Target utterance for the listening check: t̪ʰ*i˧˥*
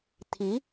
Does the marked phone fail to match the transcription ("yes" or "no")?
no